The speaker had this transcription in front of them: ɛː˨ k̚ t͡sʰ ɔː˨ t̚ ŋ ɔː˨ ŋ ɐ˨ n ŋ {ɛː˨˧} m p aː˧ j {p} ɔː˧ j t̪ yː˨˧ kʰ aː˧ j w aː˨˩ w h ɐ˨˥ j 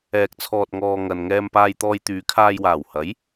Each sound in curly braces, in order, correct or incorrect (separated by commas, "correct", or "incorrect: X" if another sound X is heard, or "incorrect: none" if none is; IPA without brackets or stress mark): incorrect: ɛː˧, incorrect: t̪